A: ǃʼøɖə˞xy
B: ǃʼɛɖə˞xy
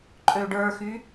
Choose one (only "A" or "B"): A